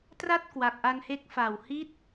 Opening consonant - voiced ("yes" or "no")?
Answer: no